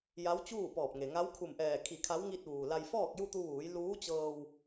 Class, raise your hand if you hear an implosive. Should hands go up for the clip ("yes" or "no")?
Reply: no